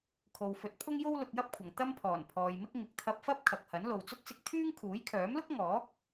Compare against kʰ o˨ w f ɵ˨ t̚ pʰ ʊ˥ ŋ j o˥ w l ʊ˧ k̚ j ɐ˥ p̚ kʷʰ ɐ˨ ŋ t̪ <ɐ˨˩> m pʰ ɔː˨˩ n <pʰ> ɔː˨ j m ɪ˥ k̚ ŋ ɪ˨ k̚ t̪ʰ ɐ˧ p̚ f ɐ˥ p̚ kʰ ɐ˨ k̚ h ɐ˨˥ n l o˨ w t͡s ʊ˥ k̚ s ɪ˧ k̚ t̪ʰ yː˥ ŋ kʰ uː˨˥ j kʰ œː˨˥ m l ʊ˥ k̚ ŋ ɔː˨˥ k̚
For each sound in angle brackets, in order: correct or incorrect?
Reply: incorrect, correct

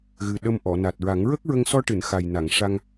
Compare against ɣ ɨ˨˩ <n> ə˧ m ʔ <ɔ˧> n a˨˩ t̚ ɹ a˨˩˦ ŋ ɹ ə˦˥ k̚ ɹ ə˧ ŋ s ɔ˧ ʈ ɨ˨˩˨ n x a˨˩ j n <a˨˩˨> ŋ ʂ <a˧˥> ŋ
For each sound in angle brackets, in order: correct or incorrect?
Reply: incorrect, incorrect, correct, incorrect

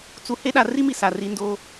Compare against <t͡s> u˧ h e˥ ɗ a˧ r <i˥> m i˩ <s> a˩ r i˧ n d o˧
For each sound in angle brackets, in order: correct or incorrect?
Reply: correct, correct, correct

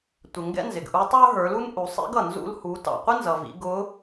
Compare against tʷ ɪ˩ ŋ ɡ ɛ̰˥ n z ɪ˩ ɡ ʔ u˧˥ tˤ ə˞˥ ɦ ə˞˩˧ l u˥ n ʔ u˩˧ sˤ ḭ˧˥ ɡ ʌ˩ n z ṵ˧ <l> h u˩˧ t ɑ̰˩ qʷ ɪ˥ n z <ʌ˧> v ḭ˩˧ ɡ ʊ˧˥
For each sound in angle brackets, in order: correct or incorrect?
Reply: correct, incorrect

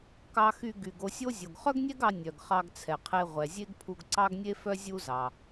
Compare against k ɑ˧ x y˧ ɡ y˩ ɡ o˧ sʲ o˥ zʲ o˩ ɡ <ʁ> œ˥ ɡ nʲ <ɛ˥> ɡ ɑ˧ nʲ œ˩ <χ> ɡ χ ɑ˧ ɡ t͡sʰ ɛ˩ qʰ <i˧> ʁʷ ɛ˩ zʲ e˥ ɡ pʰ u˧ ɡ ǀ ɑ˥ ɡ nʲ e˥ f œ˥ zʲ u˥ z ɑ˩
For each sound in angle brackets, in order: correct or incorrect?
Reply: incorrect, correct, incorrect, incorrect

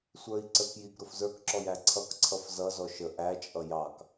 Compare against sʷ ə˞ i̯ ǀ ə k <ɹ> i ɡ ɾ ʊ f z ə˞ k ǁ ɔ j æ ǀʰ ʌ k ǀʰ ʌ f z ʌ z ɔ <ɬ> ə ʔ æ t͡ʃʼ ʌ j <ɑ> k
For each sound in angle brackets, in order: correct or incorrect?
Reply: incorrect, incorrect, correct

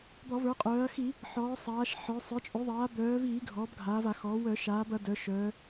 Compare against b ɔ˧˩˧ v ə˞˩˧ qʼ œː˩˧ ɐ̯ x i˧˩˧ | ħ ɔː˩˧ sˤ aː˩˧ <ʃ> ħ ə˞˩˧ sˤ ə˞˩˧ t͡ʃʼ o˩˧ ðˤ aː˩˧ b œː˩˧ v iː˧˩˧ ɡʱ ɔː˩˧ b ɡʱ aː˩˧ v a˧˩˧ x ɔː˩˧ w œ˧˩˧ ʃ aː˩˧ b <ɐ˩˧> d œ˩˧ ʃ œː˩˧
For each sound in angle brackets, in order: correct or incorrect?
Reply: correct, correct

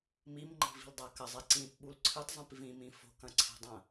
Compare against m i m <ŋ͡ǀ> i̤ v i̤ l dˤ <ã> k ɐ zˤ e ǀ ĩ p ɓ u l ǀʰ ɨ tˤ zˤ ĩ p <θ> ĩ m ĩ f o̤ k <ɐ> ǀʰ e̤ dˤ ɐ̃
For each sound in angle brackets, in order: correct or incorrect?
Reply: incorrect, incorrect, incorrect, incorrect

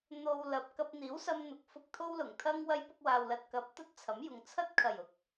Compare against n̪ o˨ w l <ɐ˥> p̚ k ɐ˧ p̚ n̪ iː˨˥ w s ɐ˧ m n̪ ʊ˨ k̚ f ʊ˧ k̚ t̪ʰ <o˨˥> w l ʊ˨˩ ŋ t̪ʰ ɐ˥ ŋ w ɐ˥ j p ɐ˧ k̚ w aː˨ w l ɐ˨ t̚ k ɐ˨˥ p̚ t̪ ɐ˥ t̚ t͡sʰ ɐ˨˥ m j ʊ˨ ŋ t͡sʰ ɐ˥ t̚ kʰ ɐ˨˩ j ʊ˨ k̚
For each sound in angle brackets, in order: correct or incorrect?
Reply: incorrect, incorrect

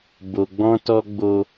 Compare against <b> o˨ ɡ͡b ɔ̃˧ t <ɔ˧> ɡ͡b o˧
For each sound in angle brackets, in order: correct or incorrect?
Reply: correct, correct

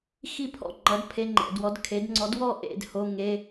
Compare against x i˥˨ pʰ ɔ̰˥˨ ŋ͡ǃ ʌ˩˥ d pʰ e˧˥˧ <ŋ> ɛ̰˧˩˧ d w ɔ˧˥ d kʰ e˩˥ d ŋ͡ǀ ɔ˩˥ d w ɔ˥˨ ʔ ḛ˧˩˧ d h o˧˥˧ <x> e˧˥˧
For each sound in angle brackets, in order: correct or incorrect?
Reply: incorrect, incorrect

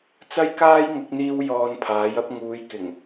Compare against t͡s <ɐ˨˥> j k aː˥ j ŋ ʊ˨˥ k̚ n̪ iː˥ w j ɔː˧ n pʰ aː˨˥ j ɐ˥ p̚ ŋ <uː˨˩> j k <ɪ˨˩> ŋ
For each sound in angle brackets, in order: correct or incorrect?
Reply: incorrect, incorrect, correct

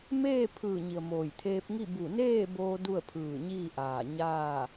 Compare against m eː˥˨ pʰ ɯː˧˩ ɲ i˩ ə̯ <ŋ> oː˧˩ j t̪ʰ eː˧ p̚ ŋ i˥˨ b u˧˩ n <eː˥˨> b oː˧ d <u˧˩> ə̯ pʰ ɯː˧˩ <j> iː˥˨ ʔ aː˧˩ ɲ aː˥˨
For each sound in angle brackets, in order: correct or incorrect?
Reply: incorrect, correct, incorrect, incorrect

